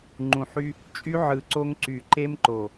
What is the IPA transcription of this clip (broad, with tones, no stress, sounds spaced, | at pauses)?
ŋ͡ǃ ũ˨ ħ y˦ | t͡ʃʼ y˦ ʕ ɯ˨ ǀ o˦ ŋ ǀ y˨ ǃ e˦ m ǃ o˨